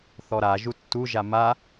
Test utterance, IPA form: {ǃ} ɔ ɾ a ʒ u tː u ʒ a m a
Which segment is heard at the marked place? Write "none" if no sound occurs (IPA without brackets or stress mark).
θ